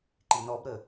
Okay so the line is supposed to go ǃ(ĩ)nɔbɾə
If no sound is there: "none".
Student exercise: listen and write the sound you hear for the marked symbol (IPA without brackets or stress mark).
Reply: i